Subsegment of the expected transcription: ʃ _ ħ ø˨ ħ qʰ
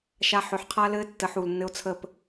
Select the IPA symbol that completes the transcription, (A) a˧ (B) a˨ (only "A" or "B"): A